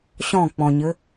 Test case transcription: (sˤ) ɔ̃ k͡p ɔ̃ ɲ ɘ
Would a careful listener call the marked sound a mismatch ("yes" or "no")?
yes